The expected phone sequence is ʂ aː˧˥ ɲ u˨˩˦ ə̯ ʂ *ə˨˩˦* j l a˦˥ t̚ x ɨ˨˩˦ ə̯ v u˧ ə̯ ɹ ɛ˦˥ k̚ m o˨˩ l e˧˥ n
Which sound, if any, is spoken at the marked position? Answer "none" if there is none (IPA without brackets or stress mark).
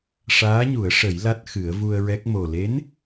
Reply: ə˨˩˦